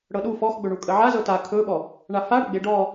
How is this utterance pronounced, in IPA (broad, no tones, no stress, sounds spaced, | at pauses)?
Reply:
ɽ ɤ ɗ u f ɔ x ɡ͡b ɵ ɳ u kʼ ə ʕ a z ɤ t a kʰ ɵ ɓ ɔ | ɳ a f a ɽ ɵ ɡ͡b e ɖ ɔ